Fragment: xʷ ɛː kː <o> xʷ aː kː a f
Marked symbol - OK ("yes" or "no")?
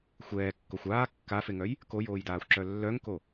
yes